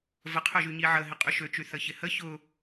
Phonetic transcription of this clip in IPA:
v ə qʰ ø ʒ y ɲ i ʕ ə ɦ ɪ qʼ y ʃ ø t͡ʃ y θ ə ç ɪ h ə ç ʊ

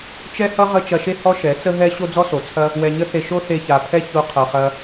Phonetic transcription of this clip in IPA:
t͡ʃ ɛ˦ h ʌ˦ ʁ ə˦ t͡ʃ ɐ˧ ʃ e˦ h ɔ˦ ʃ ɛ˨˦ t͡s ə˦ ɦ ɛ˦ ɕ o˦ d͡z ɔ˦ s o˨ t͡sʰ ɐ˦ | w ɛ˧ ɲ ə˦ θ e˧ ʃ o˦ θ e˧ ç a˨ pʰ ɛ˦ ç o˧ qʰ ʌ˨ χ ɐ˧

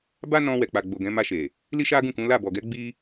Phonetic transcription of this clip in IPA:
b a˦ n ɔ̃˧ w ɛ˨ k͡p a˨ ɡ͡b o˨ ɡ ɛ̃˨˦ m a˧ ʃ e˨ | l i˦ ʃ a˦ ɡ ũ˦˨ k ũ˨˦ l a˦˨ b ɔ˨ ɡ ɛ˨˦ ɡ͡b i˦

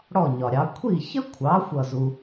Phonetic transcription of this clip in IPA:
ɽ ɔ˥˩ ɲ ɒ˩ ɾʲ ɑ˩˥ kʷʰ i˥˩ ç ə˥ kʷʰ ɑ˩˥ xʷ ʌ˥˩ z u˧

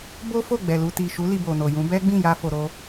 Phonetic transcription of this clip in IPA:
b o˦ f o˦˨ ɡ͡b ɛ˨ l u˧ t i˨ ʃ u˨˦ l i˧ b o˨ n o˨ j ũ˨˦ b ɛ˦ ɡ͡b ĩ˦˨ j a˧ f o˧ ɾ o˧

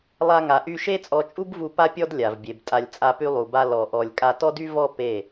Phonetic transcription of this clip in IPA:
lˠ a˦ ŋ a˧ ʔ y˦ ʃ e˦ t͡sʼ ɔ˧ t͡ʃʼ u˦ b v u˧ p a˦ pʲ ɔ˦ d lʲ a˨ v bʲ e˨ b tʼ a˧ lʲ t͡sʼ a˧ p y˧ lˠ u˨ b a˧ l ɔ˧ ʔ ɔ˧ lʲ kʼ a˧ t ɔ˦ d y˦ v ɔ˦ p e˦˨

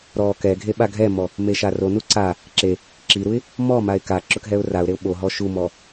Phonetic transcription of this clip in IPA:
ɾ ɔ k ɛ ɡʱ e ɓ a ɡʱ ɛ m ɔ | m e ʃ a r o n u ǀ a | ǁ e | ǁ i ɾ u ɪ̯ | m ɔ m a ɪ̯ k a ǁ ʊ k ɦ ɛ ʊ̯ r a ʊ̯ ɾ e ʊ̯ ɓ o ɦ ɔ ʃ u m ɔ

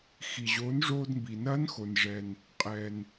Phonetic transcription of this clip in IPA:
x i˩ ʑ oː˩˧ n ʐ oː˧ d m b i˩ n ɐː˧˥ n x o˩ n ʐ ɛ˩ n | qʼ ɛ˩ n

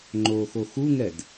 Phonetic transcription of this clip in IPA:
ŋ͡ǃ oː x o x u ŋ ɛ d

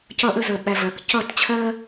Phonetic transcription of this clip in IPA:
c ʌ˦ ʔ ə˦ z ə˧ ɓ æ˧ v ɜ˨ k c ʌ˦˨ t t͡ɕʰ ɜ˦

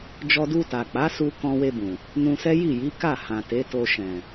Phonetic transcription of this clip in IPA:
d͡ʒ ɔ˧ d u˧ t a˨ k͡p a˨˦ s u˧ k ɔ̃˧ w e˧ b ũ˨ | n ũ˧ s ɛ˦ j i˦˨ j i˨˦ k a˦˨ h ã˨ t e˨˦ t o˧ ʃ ɛ̃˨

